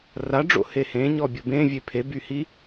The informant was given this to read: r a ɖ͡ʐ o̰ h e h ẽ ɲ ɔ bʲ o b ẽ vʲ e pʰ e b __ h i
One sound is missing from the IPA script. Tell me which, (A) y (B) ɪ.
A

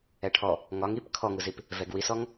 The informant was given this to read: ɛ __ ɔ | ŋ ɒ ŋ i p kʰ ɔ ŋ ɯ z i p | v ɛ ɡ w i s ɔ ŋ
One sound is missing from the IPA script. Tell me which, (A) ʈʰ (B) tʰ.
A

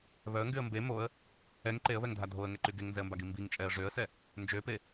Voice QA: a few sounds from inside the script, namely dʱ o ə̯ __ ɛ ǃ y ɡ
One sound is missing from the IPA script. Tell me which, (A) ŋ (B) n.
A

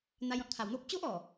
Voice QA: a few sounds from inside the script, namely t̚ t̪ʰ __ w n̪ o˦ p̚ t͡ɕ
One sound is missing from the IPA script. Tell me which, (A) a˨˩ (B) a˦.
A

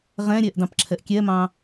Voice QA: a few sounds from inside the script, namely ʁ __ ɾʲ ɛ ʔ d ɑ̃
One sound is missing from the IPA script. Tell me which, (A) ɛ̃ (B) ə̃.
A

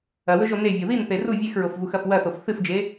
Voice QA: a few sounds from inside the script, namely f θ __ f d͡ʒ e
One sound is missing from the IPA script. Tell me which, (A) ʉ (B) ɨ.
B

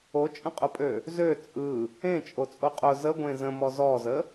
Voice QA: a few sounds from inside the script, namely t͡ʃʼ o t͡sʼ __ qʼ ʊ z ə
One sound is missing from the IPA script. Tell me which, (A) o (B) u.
A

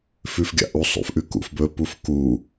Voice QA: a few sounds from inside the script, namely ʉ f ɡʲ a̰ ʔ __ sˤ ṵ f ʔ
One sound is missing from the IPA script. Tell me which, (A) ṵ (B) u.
B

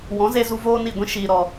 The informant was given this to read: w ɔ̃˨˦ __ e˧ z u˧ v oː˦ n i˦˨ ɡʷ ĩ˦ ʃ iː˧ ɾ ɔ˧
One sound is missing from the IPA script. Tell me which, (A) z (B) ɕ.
A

